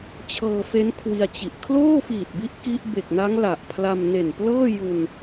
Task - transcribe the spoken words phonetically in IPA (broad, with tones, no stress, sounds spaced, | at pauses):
t͡ɕʰ ɤː˧ f e˦˥ n kʰ w i˧ a̯ t͡ɕ i˨˩ ʔ kʰ l oː˥˩ f iː˨˩ t̚ b i˦˥ ʔ k i˦˥ ʔ b e˨˩ k̚ n a˦˥ ŋ l a˨˩ ʔ pʰ l a˧ m n e˨˩ n p l ɤː˥˩ j u˧ n